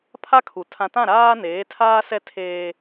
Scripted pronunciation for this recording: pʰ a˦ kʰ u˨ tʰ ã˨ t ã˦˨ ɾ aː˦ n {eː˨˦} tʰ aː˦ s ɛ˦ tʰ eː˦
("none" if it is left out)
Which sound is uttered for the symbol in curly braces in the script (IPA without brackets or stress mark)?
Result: eː˨˦